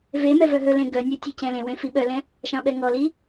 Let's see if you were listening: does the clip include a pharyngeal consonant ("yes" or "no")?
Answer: no